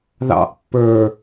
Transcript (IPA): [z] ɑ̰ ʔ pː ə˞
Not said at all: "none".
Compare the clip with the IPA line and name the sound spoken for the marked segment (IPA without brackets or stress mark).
ð